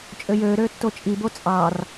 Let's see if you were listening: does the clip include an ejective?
yes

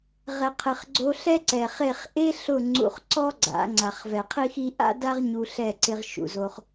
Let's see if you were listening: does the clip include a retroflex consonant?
no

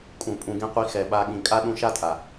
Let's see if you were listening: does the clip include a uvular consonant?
yes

